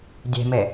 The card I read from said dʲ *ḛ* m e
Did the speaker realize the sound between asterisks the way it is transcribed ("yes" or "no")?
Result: no